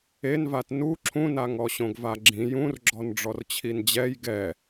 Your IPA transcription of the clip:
envat nu ǁʰũnaŋɔ ɕõɡvaɡ͡ǁĩ jũrɡ͡ǁɔn ɖ͡ʐɔrt͡ɕʰind͡ʑɛj ɡɛ

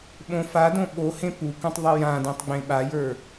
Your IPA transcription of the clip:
ɓõfadõ ɓohẽ pukũtˤ ðˤijãdẽtˤ ɡ͡bẽɓajə˞

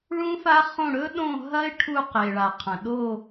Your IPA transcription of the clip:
ɭũ˦˥fa˦˥χõ˦˨ ɽɵ˦˥ɗõ˦˨ɦɐ˦˥ɪ̯ ʈʰu˦˨ qe˩ɭa˩ qʰɐ̃˩ɗo˦˨

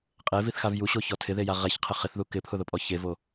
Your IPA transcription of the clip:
qʼeviθxav juɕoçɔ tʰɪðeja ʁɛçqʰɪ χɪθðu kɪpʰʊðʊpʼɔ çevo

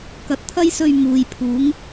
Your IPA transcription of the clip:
kɐ˨t̚t̪ʰɐ˥jsɵ˧ɥ muː˨jpʰuː˨˥ŋ

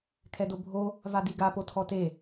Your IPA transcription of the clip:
kʰɛdobʱo | vadiɡa potʰɔte

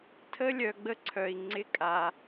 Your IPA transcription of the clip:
tʰə˦lʲœ˨ɡ͡bə˦ ǀʰœ˨i̯ ŋ͡ǀɪ˦kʼa˨

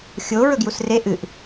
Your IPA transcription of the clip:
xʲo ɹɵɡjusre ʔɨʔ

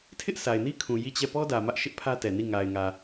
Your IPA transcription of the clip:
tʰɪ˦ʔsʰa˨ɪ̯ni˦kʰũ˨ ji˦˨t͡ɕɛ˦˨ pɔ˦dä˨ mä˦ʔʃɪ˦ʔpʰä˦tɛ˨ ni˦˨ ŋa˨ɪ̯ŋä˨

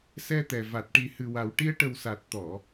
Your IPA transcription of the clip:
sɛ˧t̪ɛ˨˩ va˨˩t̚ ʈi˨˩hɨ˨˩wa˨˩wʈi˧ə̯ ʈə˨˩wsa˨˩t̚t̪ɔ˨˩˨

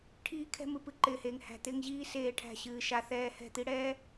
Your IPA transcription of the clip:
ʈʰiː˦kʰɛ̤˦ mɨ˨pɨ˦ǃɪː˨heː˨ŋ hæ̤˨t̪ɪː˦ŋʑiː˦ seː˦˨ʈʰæ̤˦˨ɕɨː˨ʃa˦ θɛː˦ hɛ̤˦˨t̪i˦ɽɛː˦

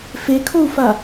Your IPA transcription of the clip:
fekʰou̯fa

